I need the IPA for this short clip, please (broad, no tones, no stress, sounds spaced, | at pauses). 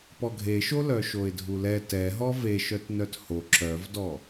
p ɔ ɡʱ e ʃ o l œ ʃ o ɪ̯ dʱ u l ɛ t ɛ ɦ ɔ v e ʃ œ t n œ t h o ǁ œ v d ɔ